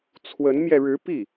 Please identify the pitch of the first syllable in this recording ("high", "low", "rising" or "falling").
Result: rising